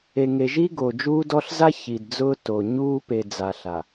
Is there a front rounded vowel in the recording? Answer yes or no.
no